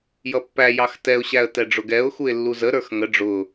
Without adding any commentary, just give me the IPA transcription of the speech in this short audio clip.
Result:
jʌpːæjɑx tɛʊ̯ɕæə̯ tɛɖ͡ʐʊɡɛʊ̯xuɪ̯ lːuzəɾə˞x ŋə ɖ͡ʐʊ

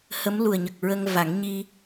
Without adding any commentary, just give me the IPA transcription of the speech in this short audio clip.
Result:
hə˧˥m lu˨˩ə̯ɲə˨˩k̚ ɹə˧ŋ va˨˩˦ŋ ɲi˧

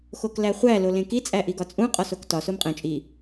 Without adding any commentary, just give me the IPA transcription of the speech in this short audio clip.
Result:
xoklæχʷæ lolẽki t͡sʼæʔiɡɒt͡sʼũ qʼɒsoktɒ somqʼẽ t͡ʃʼi

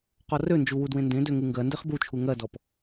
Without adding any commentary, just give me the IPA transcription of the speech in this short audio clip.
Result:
qɔrønd͡ʒu wudwẽndẽdø ŋɯŋɡɜndeχ but͡ʃʰu ŋɜdɔp

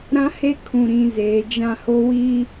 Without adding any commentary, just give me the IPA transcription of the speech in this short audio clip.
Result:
ɾã˦he˦ kʰũ˨ ɾĩ˦zeː˨˦ d͡ʒã˦ho˦wi˦

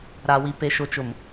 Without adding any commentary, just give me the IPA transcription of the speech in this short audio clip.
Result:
ɾa˨wi˨pe˨ ʃʊ˨t͡ʃʊ˨m

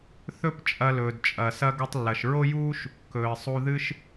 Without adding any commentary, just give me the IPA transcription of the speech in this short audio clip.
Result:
θɵ˥pt͡ʃʼɐ˧lɵː˩d t͡ʃʼɐ˩sɐ˥ ɡɵ˧tˤlːɐ˩ʃɹo˥juː˥ʃ | kɵː˩ɪ̯sˤu˧ðɨ˥ʃ

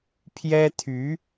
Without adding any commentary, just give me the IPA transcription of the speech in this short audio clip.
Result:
pʰjɛ˥t̪ʰy˧˥

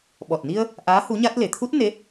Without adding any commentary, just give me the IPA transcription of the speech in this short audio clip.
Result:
ɓɔ˨˩t̚ni˧ə̯ | ʔaː˧˥ hu˧˥ɲa˦˥t̚ le˨˩t̪ʰu˦˥t̚ ne˧˥

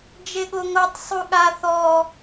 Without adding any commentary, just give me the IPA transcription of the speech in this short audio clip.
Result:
d͡ʒeɠoŋotˤ sˤuɠa θɔ

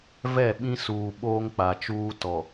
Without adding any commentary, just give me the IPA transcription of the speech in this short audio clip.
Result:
vɛ˦˨ɓĩ˦suː˨ ɓoː˦ŋk͡pa˨t͡ʃuː˦ tɔ˨

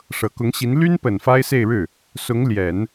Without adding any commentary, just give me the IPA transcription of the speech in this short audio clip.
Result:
ʂɤ˨˩kʊ˧˥ŋɕi˧˥n ly˥npə˨˩n fa˥ɪ̯se˥˧ɪ̯ɻɻ̩˥˩ | sʊ˧˥ŋ ljɛ˨˩˦n

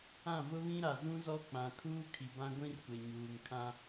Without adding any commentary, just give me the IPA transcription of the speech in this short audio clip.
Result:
ã˦˨vʊ˦βĩ˦ɾa˨ zũ˦zɔ˦k͡pã˨ kʰuː˦ kʰi˨bã˦ ɡʷĩ˦rkʷe˨ɲuː˨ŋkʰã˦

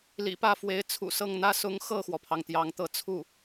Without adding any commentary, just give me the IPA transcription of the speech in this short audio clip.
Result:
lḭ˨˩pä˥˩fwe˧˥ɪ̯ t͡sʰṵ˨˩sɤ˥˩ŋn̪ä˥ sʊ˧˥ŋxɤ˥˩xwɔ˩pʰɑ˩ŋ t̪jɑ˧˥ŋt̪ɤ˥˧t͡sʰu˥˩

